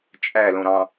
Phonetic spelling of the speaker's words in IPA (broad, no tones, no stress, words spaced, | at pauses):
t͡ʃʼælõɾɑ̃